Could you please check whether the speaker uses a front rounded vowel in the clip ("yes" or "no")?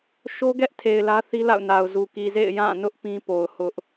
no